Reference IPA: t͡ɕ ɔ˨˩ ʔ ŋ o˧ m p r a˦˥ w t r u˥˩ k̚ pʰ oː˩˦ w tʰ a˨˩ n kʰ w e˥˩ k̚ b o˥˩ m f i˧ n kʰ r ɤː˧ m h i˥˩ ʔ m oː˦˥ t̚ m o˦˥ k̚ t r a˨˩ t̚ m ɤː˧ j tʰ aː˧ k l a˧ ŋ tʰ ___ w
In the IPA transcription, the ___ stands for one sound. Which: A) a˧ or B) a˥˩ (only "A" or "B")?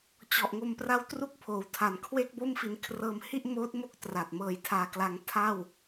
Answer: B